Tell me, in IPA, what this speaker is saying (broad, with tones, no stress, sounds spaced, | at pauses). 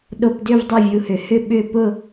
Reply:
ɗ o˧ p d ʏ˥˧ v dˤ o˥˧ vʲ u˧ h ʏ˨˩˦ h ʏ˥˧ ɓ ʏ˥˧ p ʊ˥˧